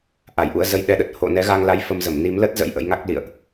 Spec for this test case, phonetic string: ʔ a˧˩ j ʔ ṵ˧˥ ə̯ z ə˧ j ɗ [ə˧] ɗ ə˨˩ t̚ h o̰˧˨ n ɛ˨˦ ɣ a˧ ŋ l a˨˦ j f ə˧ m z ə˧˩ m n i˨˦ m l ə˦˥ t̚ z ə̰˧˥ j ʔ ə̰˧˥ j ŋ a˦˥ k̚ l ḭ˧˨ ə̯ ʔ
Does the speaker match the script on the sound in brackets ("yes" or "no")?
no